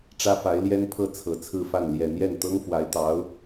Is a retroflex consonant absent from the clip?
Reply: no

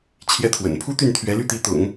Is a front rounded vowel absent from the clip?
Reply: no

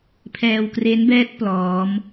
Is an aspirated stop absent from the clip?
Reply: no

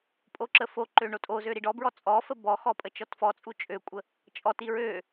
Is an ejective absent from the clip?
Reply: no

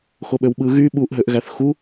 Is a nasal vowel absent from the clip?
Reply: yes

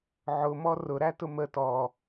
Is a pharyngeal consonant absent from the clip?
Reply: no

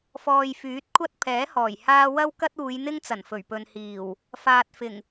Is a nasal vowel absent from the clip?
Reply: yes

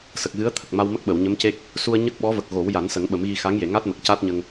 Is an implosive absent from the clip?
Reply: no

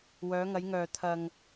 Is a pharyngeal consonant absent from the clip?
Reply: yes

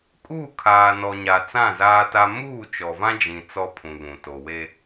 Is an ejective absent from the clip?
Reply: no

